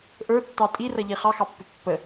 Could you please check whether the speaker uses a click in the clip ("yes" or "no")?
no